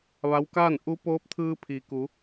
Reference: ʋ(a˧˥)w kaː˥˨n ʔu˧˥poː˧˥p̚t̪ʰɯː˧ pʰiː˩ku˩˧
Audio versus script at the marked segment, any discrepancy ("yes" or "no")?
no